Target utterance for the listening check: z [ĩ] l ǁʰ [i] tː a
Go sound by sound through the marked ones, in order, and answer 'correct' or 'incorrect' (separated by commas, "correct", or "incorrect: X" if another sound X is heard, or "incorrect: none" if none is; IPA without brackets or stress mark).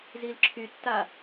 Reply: incorrect: i, incorrect: y